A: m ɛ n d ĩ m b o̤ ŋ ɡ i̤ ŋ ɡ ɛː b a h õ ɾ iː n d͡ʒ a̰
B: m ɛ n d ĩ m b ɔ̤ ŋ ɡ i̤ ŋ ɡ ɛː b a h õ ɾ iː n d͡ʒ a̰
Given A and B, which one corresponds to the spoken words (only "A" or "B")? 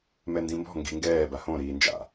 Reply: B